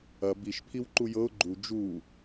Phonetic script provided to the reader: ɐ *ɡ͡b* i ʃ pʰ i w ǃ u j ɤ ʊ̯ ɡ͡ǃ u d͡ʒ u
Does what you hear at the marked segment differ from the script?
yes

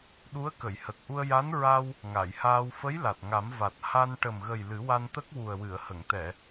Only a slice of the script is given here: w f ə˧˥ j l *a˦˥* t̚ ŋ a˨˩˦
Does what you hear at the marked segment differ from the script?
yes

